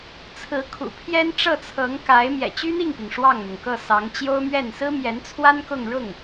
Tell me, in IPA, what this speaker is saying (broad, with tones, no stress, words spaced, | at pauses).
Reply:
t͡sʰɹ̩˧˥kʰṵ˨˩ pʰjɛ˥nʈ͡ʂɤ˥˩t͡sʰɤ˧˥ŋ ka˧˥ɪ̯ mjɛ̰˨˩t͡ɕy˥n̪i˥˩ŋpi˩ŋ ʂwɑ˥˩ŋn̪ʊ˩ŋkɤ˥˩sɑ˧˥ŋ t͡ɕjo˥ʊ̯mɥɛ˥˩n sɹ̩˥mjɛ˧˥nt͡sʰwa˥n kʊ˥˧ŋɻʊ˥˩ŋ